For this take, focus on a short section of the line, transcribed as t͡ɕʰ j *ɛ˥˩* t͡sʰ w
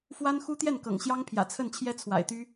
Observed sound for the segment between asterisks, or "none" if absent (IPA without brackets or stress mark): ɛ˥